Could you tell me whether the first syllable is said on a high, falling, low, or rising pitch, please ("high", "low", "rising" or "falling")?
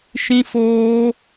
high